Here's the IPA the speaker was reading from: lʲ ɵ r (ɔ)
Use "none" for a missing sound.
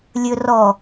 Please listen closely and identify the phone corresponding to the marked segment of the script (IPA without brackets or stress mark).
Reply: ɔ